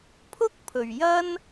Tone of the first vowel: high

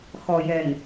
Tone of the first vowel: low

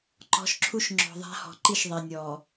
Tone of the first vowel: rising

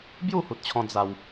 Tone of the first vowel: falling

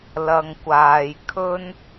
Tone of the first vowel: low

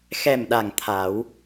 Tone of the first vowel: low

